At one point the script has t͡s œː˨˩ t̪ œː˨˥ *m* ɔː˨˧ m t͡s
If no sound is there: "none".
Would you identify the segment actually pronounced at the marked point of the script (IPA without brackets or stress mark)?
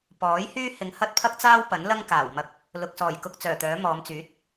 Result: m